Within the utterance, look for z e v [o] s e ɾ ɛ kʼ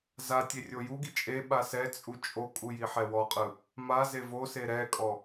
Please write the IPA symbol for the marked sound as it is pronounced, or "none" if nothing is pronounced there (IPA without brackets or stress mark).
o